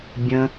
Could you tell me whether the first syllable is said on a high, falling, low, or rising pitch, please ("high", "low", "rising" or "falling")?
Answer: low